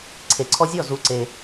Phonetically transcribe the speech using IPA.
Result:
ǀʰ e˩ ǀʰ ɔ˧ zʲ ɔ˥˩ z u˩˥ ǀ e˩

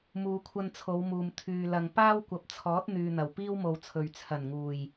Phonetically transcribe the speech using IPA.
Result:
m uː˨˧ kʷʰ ɐ˧ n t͡sʰ o˨˧ w m uː˨ m t̪ʰ yː˧ l ɐ˧ ŋ p aː˥ w kʷ ɐ˨ p̚ t͡sʰ ɔː˨˥ t̚ n̪ yː˨ n̪ ɐ˨˩ w p iː˥ w m o˨ w t͡sʰ ɵ˨ ɥ t͡sʰ ɐ˨˩ n ŋ uː˨˩ j

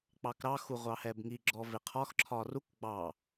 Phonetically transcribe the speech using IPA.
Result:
k͡p ɑ k ɾ ɑ x u ʁʷ ɑ h ɛ b ŋ i ɡ͡ǁ ɔ v ɪ qʰ ɒ x ǁʰ ɒ r u k ɡ͡b ɑ

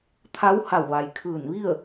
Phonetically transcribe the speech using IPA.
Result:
t̪ʰ a˧˥ w h a˧˩ w ʋ a˩ j kʰ ɯː˧˩ n ʋ i˥˨ ə̯

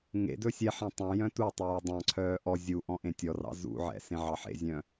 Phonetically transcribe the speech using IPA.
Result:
ŋ ḛ d ɵ sʲ ɛ ħ ɛ̃ tˤ œ̃ j œ̃ t u tˤ œː dˤ ɑ̃ ǀʰ œː ʔ ɔ zʲ u ʔ ɔ̃ ʔ ẽ tʲ ɔ r ɑ̰ z ṵ ʕ ɛ̰ s ẽ ʕ ɑ ħ ḛ zʲ œ̃

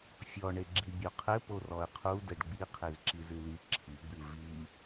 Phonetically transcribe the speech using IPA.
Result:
fʲ ɔ ɳ e ɡ͡ǁ i bʲ o qʰ ɘ p o r ɔ ə̯ qʰ u d ɘ ɖ ɡ͡b i qʰ e z ǁ i z ɨ l i ǁʰ i ɡ͡b ɨ v i

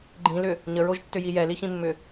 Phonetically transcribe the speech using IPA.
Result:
ɡ͡ǃ ĩ l ʏ | ɲ ə ɹ o ʒ tː ʏ j i j ɛ l i ç ĩ mː ʏ

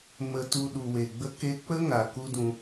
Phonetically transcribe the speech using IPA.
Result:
m ə˧ t u˧ ɗ u˨ w e˨ ɡ͡b ə˧ k e˧ k͡p ə˦ ŋ a˨ k u˦ d ũ˧

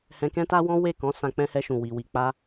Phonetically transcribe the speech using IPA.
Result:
h ɛ̃˧ k ɛ̃˦ t a˦ w ɔ̃˦ w e˦˨ k ɔ̃˨˦ s ã˧ k͡p ɛ̃˧ h ɛ˧ ʃ ũ˨ w i˨ w i˨ k͡p a˧

